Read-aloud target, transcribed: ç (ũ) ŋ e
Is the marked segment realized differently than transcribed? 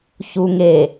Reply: yes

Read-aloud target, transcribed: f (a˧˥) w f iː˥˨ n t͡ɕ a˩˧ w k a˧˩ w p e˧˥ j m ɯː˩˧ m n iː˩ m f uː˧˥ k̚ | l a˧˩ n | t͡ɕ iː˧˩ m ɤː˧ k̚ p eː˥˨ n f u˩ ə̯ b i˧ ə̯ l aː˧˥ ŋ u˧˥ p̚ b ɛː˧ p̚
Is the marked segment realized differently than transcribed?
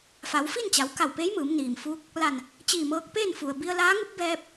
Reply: yes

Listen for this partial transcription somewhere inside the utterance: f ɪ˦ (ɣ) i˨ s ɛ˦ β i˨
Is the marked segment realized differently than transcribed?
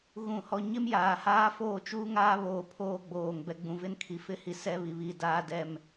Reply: yes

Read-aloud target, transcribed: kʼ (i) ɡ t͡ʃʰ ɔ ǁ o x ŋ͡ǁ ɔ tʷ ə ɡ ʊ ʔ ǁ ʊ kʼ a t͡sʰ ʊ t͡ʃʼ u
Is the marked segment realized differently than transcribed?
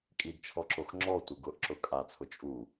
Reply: no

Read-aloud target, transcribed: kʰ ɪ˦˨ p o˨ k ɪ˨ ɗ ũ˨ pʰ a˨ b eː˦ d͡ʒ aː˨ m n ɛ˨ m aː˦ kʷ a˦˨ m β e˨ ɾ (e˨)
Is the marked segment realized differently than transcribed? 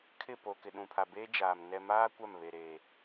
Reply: yes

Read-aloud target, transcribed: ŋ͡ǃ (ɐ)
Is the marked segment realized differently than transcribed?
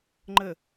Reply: yes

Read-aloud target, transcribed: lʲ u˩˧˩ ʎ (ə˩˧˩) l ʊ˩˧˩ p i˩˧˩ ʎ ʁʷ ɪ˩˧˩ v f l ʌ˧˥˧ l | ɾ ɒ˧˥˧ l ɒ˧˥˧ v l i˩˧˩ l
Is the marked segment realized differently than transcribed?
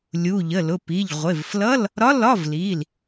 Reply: no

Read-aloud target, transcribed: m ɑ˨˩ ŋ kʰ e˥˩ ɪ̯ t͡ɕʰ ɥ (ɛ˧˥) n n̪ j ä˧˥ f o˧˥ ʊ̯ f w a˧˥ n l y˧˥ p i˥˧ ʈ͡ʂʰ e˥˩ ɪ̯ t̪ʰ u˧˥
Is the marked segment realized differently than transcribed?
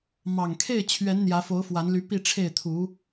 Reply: no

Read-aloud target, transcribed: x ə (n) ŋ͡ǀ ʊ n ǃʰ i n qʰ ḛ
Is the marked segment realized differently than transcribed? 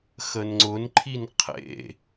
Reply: no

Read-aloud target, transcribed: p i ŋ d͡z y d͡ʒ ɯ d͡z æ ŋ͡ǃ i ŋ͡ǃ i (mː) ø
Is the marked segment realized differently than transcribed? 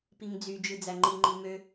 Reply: yes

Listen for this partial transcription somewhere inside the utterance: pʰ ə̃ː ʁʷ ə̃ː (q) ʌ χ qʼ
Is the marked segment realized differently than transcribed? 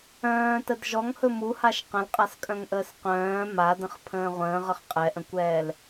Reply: yes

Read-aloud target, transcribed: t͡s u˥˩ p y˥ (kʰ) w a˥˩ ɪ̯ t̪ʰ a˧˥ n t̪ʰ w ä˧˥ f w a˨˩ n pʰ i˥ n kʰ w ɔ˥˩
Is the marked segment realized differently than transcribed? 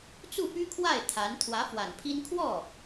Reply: no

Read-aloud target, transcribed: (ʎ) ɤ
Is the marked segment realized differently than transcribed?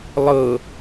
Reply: yes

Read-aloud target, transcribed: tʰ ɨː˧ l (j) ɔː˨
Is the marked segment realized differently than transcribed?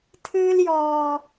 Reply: no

